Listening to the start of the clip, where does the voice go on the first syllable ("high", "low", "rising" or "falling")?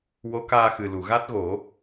rising